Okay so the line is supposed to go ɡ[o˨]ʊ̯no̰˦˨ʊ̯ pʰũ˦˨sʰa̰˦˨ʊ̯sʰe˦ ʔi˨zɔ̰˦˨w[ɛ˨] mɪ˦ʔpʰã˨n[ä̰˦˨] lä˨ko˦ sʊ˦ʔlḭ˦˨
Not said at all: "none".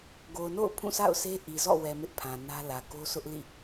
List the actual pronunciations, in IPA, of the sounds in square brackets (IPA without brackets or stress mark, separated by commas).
o˨, ɛ˨, ä˦